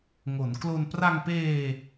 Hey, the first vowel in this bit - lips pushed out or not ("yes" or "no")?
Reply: yes